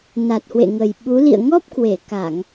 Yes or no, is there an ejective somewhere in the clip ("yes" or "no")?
no